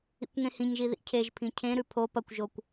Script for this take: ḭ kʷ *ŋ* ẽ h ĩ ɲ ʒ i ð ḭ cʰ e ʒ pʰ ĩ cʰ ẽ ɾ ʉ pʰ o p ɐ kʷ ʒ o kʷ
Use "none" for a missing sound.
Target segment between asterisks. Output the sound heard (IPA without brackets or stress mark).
ŋ